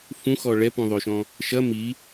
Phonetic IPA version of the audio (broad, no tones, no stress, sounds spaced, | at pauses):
f ũ x ɔ ɭ ɛ p ũ ðˤ o ʃ ɔ̃ | ʃ ɐ m i